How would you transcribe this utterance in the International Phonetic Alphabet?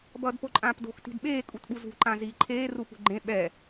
bʌːdpoǃʼãːpdo̤x ti̤dɓeː kʼutɓuzṳ ǃãziːǃʰeː rupṳɡ͡ǃẽ ɓɛ

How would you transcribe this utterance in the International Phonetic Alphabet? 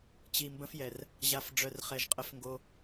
t͡ɕi˨mbə̃˦fjɛ˨r | ʑa˨f ɖ͡ʐœ˨rχɛ˨ʒ qʼə˦fŋɡo˦

